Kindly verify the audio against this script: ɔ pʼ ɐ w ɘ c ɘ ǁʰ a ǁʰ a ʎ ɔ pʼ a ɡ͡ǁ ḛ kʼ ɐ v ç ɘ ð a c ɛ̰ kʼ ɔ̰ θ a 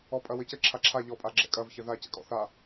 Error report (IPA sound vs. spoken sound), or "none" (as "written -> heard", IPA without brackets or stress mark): ḛ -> ɛ̰